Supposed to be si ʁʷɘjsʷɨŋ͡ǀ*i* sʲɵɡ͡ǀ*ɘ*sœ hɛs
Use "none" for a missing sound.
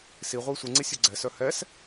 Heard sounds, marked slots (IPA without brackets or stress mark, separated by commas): i, ɛ